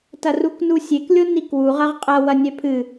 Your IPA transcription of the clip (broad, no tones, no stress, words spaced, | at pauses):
tɐruknusʲek lʲonikwu ʁɐʁqʼɐ wɐnʲɛpʰɨ